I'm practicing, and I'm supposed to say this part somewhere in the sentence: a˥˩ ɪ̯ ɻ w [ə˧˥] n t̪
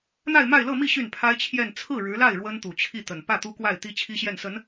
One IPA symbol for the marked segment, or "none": ə˥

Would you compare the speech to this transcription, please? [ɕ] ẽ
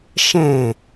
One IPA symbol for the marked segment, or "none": ʃ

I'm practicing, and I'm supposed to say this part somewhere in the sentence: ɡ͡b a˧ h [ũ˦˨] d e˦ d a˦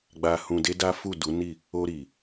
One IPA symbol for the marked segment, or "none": ũ˧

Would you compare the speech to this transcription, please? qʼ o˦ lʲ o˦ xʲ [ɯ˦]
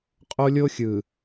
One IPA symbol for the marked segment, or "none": ɯ˨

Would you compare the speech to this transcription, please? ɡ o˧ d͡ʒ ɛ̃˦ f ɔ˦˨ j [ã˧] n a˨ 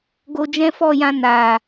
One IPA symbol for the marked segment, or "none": ã˧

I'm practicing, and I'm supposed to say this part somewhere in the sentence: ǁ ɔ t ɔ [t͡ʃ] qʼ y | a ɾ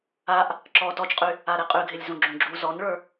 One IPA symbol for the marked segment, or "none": t͡ʃ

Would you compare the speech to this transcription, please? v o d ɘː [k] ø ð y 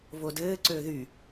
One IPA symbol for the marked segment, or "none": ǀ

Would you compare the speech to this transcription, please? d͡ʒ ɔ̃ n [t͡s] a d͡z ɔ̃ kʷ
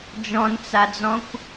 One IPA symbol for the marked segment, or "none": t͡s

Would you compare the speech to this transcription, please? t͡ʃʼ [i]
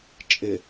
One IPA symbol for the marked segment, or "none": ɪ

